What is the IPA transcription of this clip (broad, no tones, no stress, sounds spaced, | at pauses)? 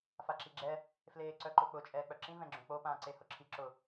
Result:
f a ǁ i ɡ͡ǁ ɛ | f l eː ǀ œ ǃ ʊ k͡p ʊ t͡ʃʼ ɛː k͡p œ ǁ ĩ v ɛ̃ ɡ͡ǁ õ k͡p o p ãː ǀ e h ʊ ǁʰ i ǁ ʊ